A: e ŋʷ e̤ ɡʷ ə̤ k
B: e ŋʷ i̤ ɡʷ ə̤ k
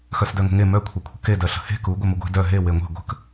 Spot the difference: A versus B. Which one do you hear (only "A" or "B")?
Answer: A